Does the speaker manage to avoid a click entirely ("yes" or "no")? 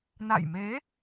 yes